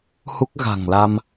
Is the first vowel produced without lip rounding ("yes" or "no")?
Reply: no